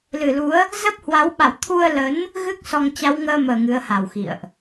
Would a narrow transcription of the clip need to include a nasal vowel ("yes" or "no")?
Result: no